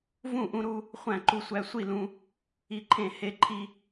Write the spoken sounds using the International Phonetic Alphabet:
vũ˥˨ʔũ˦ɾu˦ | χʷæ̃˥˨ǃu˦sʷæ˦ sʷi˥˨lũ˦ | i˦ǃʰẽ˥˨ he˦ǃʰi˦

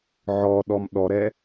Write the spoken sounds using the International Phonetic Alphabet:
ʕɔɗɔm ɗɔɾɛ

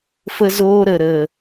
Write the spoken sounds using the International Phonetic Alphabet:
fə˧zoː˧ɾə˨ ɾə˨

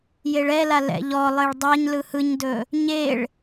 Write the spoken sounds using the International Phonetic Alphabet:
jeɭɛla lɛ̰ʎɔlˠeɭ dˤaɲ lɯhɯɲdɵ | ɲeɭ

